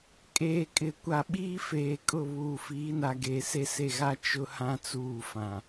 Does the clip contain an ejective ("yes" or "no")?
yes